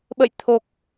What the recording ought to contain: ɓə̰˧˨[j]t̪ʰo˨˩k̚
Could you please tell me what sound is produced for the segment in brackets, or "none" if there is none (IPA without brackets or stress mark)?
j